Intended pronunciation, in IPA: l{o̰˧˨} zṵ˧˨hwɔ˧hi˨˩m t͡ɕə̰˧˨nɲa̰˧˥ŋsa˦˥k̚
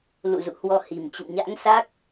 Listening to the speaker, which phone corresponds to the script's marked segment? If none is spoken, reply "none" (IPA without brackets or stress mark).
ṵ˧˨